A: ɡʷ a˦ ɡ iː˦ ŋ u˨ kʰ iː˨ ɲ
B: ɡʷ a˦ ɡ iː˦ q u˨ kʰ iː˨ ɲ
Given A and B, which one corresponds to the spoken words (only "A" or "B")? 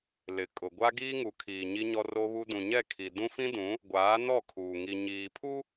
A